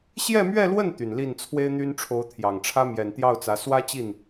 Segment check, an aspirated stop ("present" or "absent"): present